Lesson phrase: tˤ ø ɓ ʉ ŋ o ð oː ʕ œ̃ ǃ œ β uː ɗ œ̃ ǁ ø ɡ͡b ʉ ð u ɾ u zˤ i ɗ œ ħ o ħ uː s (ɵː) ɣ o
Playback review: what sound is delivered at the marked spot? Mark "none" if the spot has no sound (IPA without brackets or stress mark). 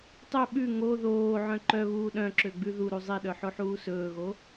ɵː